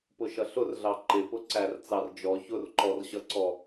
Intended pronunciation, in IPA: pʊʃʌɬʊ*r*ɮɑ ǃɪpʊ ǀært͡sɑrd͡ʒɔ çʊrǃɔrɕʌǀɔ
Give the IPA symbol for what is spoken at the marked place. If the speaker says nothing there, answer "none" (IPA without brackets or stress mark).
r